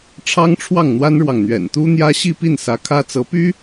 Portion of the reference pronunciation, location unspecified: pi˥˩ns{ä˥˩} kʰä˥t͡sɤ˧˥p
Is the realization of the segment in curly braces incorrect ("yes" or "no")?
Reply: yes